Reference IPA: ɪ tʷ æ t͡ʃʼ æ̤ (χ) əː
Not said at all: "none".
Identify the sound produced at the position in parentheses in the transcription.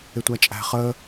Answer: χ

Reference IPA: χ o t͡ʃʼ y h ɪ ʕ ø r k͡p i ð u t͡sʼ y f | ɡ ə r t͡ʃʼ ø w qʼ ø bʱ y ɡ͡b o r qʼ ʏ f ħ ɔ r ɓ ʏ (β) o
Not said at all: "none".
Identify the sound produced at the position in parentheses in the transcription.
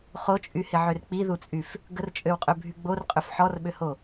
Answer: h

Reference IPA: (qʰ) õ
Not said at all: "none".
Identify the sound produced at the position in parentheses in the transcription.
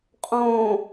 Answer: qʼ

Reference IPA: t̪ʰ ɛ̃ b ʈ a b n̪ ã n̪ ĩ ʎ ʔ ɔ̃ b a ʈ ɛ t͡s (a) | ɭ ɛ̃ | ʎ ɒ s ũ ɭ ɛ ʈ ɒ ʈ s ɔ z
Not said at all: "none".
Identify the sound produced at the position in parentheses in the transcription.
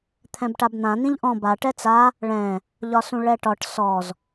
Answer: a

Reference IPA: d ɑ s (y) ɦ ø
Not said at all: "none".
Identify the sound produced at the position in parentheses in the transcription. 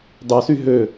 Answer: y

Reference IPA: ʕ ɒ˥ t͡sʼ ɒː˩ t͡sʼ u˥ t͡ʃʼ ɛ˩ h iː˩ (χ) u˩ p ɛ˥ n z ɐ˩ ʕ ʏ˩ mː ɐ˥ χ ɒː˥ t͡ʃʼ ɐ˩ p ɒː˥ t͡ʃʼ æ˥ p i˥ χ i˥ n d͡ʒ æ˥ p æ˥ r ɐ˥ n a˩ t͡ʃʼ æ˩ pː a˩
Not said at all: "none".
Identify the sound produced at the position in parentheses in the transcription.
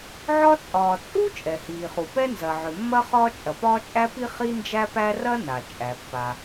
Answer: χ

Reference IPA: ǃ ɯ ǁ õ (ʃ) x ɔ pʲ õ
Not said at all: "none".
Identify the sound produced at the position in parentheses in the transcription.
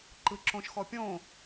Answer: ʃ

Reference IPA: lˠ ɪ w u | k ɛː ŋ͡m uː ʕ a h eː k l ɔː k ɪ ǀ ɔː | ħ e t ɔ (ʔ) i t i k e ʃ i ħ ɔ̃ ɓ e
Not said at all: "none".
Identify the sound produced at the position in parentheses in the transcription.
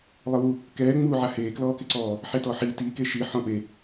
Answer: ħ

